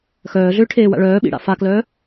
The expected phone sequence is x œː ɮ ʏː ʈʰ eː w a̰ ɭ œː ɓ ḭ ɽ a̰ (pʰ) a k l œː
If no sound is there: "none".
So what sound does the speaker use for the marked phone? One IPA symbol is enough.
f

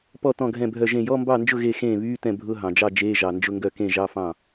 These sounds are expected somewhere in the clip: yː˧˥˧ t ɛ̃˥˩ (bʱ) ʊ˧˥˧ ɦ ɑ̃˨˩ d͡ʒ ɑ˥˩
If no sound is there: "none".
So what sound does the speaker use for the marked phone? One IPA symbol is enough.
bʱ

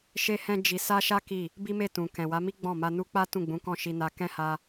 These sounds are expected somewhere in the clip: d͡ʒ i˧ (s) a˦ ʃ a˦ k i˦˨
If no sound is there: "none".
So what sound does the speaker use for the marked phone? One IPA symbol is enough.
s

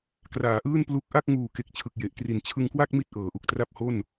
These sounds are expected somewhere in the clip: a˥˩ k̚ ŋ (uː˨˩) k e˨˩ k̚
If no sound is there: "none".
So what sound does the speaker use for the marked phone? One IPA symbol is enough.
uː˨˩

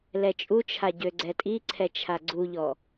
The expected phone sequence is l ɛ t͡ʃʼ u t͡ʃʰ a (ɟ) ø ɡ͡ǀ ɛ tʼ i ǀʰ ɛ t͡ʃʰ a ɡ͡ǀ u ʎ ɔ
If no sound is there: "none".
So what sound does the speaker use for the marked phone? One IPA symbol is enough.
ɟ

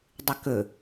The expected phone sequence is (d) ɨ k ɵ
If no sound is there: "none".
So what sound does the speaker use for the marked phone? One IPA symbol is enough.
dˤ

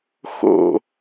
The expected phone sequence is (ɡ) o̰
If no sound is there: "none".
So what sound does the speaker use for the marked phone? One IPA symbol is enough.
x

